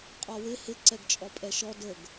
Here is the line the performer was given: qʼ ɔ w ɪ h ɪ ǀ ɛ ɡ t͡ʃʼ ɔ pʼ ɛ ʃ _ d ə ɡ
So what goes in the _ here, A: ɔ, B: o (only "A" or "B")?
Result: A